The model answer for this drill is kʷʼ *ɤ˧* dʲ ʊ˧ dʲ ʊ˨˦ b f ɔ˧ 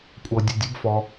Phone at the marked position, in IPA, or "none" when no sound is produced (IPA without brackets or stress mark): ɤ˧